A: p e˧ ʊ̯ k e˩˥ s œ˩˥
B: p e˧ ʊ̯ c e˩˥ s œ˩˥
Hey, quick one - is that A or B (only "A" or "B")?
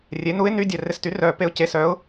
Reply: B